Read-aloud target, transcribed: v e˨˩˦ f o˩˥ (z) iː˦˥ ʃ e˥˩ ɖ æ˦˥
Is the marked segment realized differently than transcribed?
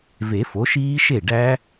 yes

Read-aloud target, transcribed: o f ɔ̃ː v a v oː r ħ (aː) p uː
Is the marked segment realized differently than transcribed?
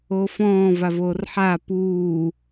no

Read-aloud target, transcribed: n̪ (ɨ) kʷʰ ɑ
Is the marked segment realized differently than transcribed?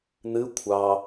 no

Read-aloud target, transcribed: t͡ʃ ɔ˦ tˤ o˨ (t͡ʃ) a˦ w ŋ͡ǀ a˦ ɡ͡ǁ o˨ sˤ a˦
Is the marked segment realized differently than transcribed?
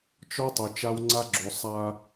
no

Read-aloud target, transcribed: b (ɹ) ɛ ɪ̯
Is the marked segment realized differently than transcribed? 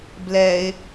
yes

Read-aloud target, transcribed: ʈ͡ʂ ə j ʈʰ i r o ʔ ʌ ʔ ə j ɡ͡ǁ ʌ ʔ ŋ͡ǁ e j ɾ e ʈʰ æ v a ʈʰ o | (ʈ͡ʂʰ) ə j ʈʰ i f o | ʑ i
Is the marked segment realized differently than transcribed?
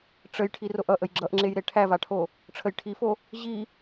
no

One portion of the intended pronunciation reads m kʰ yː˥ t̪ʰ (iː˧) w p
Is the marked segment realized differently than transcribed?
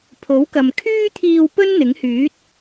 no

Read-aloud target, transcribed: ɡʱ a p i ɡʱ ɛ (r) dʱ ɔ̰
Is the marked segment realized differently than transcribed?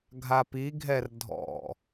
no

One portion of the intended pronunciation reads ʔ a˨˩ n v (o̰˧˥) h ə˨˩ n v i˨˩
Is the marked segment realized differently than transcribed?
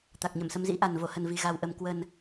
yes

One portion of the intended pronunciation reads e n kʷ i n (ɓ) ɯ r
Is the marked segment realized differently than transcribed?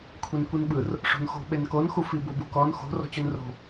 no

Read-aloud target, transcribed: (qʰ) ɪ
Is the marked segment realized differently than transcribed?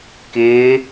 yes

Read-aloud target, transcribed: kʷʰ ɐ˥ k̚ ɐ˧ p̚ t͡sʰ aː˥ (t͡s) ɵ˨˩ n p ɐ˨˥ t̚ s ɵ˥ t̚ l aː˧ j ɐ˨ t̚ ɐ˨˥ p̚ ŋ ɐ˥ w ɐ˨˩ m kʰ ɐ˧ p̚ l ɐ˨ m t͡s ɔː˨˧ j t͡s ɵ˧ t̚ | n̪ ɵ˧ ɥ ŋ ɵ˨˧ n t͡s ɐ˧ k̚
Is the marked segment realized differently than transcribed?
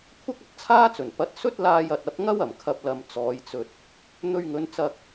no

